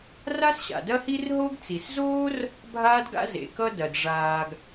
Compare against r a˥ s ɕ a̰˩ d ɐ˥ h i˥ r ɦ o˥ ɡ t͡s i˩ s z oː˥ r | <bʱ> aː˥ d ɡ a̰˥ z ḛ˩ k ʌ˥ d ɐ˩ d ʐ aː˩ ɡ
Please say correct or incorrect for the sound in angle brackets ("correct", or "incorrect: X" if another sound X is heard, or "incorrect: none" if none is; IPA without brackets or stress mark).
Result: correct